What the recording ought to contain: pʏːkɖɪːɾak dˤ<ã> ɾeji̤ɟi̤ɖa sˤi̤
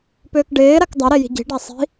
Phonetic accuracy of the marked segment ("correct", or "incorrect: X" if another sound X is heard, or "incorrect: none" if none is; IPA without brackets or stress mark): incorrect: a